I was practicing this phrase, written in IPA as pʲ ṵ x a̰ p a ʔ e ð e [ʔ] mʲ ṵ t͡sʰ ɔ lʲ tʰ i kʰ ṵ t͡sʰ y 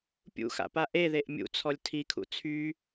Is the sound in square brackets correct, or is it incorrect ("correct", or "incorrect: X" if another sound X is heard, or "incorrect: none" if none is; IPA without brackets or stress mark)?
correct